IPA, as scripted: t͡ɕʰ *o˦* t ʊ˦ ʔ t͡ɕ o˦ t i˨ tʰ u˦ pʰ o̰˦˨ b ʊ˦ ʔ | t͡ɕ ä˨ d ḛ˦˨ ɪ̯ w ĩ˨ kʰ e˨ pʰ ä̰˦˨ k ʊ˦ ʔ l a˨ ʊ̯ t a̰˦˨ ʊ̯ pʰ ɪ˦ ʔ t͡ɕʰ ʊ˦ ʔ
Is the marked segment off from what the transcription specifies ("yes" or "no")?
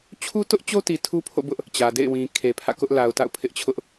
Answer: yes